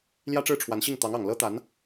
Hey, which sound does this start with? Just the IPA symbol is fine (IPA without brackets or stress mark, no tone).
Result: l